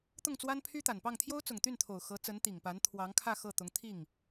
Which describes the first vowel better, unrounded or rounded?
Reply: rounded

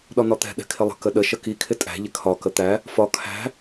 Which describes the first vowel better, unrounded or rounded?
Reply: rounded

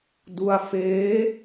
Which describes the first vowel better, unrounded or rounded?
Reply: rounded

